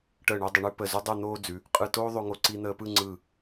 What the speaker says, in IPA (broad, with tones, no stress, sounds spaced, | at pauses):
ʈ əː˧˩ ɳ ə˞˧ dˤ ə˩˧ ɳ ʉ˧ p ə˧˩ z u˥ dˤ ɯ˥˧ n̪ oː˥ d͡z ʉ˩˧ | qʼ ɯ˧˩ t oː˥ ðˤ o˧ ŋ o˧ ǀ i˧ n̪ əː˧ p ɯ˥˧ ŋ͡ǀ ɯ˧˩